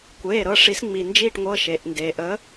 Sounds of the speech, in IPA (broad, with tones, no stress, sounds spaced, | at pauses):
kʷ eː˩˧˩ ɾ ɤ˩˧˩ ʂ i˨˥ s ŋ͡m i˩ n d͡ʒ i˦˨ ʈ ŋʷ ɤ˩˧˩ ʃ e˩ ʔ n d eː˩ ʔ ə˨˥